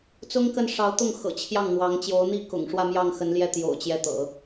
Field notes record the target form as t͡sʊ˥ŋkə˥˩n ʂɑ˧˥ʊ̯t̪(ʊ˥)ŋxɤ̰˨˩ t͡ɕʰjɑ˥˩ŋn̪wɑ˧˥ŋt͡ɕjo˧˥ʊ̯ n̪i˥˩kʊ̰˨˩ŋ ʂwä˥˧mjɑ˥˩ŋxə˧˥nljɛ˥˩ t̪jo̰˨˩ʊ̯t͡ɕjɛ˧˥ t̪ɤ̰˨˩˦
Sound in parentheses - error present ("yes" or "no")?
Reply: yes